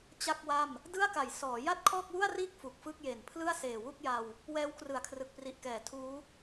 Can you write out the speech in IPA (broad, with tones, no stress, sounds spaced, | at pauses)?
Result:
t͡ɕ a˥˩ k̚ w a˥˩ m | d ɯ˥˩ a̯ k a˩˦ j s ɔː˩˦ j a˥˩ t̚ kʰ ɔː˥˩ k̚ w u˥˩ a̯ r iː˥˩ k̚ f u˨˩ k̚ f ɯ˥˩ k̚ j e˨˩ n pʰ l ɯ˥˩ a̯ s eː˨˩ w u˥˩ k̚ j a˧ w | w ɛː˦˥ w k r ɯ˨˩ a̯ kʰ r ɯ˨˩ k̚ p r i˨˩ ʔ k ɛː˩˦ tʰ uː˦˥